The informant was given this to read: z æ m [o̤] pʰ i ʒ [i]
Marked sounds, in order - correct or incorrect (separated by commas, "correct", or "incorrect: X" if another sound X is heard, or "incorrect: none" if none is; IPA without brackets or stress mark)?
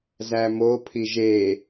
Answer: incorrect: o, incorrect: e